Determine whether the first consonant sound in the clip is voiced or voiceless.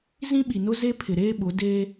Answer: voiced